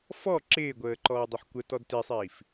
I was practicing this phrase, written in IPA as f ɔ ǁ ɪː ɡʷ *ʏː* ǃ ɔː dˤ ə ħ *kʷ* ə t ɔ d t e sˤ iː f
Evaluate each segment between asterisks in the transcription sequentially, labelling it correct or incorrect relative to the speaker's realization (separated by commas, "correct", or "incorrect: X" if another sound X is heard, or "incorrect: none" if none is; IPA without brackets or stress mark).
incorrect: əː, correct